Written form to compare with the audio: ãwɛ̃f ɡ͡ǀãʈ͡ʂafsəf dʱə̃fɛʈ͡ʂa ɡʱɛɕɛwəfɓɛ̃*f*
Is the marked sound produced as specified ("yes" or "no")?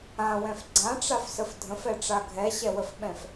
yes